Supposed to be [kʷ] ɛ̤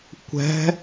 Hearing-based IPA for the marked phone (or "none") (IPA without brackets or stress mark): kʷ